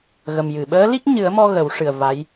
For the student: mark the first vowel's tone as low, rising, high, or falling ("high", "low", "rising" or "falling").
low